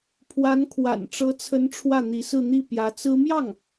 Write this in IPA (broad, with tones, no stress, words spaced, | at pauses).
pʰwa˧˥n kʰwa̰˨˩nʈ͡ʂɤ˧˥t͡sʰə˧˥n ʈ͡ʂʰwä˥˩n̪i˧˥ sɹ̩˥˧n̪i˥˩ pjä˧˥t͡sɹ̩˥ mjɑ˥˩ŋ